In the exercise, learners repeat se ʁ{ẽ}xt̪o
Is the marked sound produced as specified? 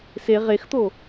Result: no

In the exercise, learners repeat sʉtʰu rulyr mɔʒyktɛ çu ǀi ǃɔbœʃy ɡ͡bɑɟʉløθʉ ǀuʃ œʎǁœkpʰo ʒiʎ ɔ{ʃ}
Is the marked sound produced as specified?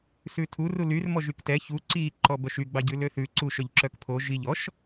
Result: yes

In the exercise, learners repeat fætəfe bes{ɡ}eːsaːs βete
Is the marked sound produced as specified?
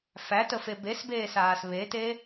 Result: no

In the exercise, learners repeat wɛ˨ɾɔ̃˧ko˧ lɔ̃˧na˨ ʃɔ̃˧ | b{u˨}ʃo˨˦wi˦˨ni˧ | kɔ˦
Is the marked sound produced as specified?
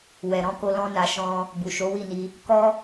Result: yes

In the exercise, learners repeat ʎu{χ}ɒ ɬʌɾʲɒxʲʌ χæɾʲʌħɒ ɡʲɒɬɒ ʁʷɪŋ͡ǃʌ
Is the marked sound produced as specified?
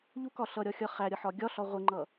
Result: no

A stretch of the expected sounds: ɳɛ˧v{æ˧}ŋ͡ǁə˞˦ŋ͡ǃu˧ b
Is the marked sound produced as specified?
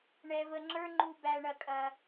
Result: no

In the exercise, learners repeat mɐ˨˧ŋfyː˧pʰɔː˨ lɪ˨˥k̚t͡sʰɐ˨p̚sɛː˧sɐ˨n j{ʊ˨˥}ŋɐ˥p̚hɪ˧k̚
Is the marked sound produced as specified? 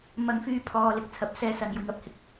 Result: no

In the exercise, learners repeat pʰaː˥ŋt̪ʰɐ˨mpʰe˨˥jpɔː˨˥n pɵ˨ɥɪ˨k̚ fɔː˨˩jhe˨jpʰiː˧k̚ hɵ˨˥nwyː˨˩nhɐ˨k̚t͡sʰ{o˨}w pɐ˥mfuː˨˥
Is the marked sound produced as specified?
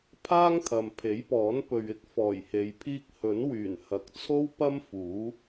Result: no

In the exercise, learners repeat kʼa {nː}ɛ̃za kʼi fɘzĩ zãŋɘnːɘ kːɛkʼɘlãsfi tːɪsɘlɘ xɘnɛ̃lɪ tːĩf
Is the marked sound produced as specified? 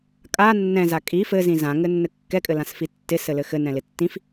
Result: yes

